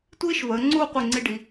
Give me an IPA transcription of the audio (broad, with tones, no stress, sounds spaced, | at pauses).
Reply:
tʷ iː˥ ʃ v əː˩˧ ŋ͡ǀ uː˥˧ qʷ i˧˩ ŋ͡ǀ i˧ ɖ i˩˧